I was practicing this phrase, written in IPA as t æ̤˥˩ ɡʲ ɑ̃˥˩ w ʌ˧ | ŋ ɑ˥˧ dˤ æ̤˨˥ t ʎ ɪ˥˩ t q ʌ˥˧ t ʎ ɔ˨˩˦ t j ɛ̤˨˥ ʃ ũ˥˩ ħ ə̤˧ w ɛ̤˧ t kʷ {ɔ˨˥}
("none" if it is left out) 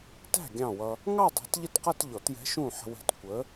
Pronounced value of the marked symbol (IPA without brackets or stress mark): ə˨˥